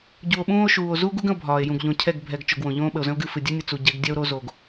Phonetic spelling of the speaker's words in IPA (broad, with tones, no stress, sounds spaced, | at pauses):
ɟ u˨ o̯ ɓ ũː˦ o̯ ʃ uː˨ o̯ z u˦ ɡ u˦ ɡ ə̃˦ o̯ bʱ ɒː˨ e̯ j ũ˨ ɡ ʎ õ˨ cʰ ɛ˦˨ ɡ bʱ ɛ˨ ɡ t͡ʃ o˨ ɡ w õ˨ ʎ õː˦ ɓ ə˨ o̯ z ə̃˦ o̯ ɡ ɨ˦˨ f ɨ˨ dʲ ɛ˦ nʲ ə˨ t͡s u˨ ɟ ɛ˨˦ ɡ dʲ ɛ˦ o̯ ɾ o˦ z o˨ ɡ